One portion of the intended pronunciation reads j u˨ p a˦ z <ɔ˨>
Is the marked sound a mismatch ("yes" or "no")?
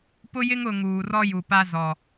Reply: no